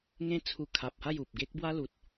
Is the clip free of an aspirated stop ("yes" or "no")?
no